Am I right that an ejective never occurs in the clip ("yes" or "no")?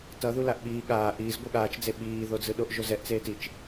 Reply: yes